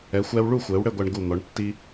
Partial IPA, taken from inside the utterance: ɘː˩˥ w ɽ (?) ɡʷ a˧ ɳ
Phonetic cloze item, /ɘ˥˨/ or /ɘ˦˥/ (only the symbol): ɘ˥˨